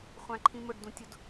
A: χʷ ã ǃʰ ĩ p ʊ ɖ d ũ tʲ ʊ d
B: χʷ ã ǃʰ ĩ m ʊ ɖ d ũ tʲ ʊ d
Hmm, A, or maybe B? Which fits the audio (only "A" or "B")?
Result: B